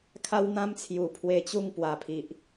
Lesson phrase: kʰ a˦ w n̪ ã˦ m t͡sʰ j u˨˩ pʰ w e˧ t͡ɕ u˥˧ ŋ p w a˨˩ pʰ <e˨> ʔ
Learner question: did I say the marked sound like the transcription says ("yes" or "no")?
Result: no